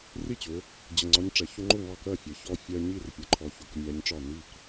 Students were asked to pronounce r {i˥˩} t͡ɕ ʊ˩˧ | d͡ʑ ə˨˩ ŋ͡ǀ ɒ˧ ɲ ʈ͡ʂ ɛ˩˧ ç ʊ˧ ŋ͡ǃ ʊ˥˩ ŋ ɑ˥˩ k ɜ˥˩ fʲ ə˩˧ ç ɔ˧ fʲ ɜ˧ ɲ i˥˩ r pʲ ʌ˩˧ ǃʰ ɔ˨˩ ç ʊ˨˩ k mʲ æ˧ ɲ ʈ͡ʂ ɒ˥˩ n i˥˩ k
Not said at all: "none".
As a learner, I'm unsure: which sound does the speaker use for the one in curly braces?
i˥˩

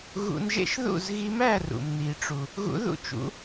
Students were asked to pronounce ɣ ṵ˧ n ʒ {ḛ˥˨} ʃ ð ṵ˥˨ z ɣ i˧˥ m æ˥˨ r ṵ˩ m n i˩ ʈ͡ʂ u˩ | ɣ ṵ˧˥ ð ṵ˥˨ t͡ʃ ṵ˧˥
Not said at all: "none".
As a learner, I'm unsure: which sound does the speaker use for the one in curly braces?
ḛ˥˨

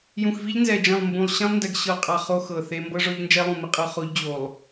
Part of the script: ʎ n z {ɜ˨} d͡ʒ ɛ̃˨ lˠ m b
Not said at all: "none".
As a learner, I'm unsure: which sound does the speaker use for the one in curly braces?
ɛ˨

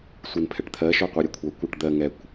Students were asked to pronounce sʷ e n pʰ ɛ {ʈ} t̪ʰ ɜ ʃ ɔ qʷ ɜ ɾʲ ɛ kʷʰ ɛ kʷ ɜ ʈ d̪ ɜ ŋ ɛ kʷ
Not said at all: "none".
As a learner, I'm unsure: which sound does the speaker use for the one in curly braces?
ʈ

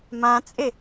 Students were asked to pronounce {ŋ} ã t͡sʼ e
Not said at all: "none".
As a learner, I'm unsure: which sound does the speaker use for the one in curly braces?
m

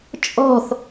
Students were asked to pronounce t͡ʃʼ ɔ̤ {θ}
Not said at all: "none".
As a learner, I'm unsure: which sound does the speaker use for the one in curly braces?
θ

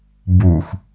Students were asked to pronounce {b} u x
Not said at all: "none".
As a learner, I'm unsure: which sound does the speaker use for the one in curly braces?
b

